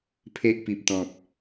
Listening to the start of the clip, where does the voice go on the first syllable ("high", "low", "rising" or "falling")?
high